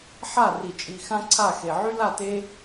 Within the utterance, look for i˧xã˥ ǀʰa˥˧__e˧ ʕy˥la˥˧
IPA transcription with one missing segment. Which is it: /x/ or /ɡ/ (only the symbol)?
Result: x